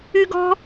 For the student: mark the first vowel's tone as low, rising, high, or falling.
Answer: high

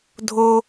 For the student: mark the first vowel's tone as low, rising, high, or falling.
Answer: high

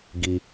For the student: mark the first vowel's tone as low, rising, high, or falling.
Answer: low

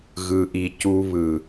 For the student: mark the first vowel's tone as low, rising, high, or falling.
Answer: low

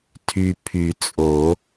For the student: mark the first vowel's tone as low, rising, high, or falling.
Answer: low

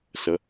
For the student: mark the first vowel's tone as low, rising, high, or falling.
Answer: rising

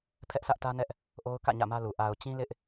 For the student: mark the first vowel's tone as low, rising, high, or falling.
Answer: high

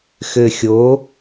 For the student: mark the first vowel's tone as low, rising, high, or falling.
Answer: low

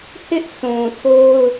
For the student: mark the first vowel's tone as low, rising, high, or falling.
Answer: high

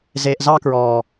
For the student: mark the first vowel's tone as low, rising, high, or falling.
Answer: low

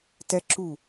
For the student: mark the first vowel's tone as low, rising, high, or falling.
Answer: high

